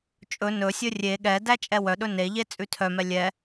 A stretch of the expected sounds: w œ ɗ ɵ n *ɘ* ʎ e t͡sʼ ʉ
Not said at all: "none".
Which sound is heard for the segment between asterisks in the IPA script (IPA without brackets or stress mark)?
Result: e